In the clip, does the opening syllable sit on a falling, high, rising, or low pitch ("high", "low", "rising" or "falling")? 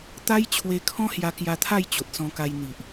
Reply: high